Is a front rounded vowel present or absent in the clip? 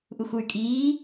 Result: present